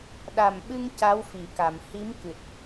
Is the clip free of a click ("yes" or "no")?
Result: yes